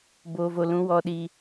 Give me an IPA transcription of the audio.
b oː˨ v o˨ l ũ˨˦ w ɔ˧ ɗ i˧

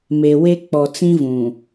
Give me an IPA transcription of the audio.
m e˨ w e˦ k͡p ɔ˨ t͡s ĩ˦ v ũ˨

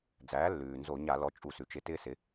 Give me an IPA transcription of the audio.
d͡z æː˩˥ lː ʉː˩ n z o˧˩˧ ɲ a˧˩˧ l ɔ˩˥ t͡ʃʼ u˧˩˧ s ʉ˩ t͡ʃ ɪ˧˩˧ t ɪː˥ s ɪ˩˥

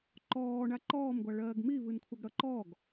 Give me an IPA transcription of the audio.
ǃ ɔː ɳ a ǃ ɔː m ɡʷ a ɭ ɜː ɡ m i v ɨ n kʷʰ ʌ ɡ ɽ ʌ ǃ ɔ ɡ

